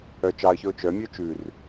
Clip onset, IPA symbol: œ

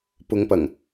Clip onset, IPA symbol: p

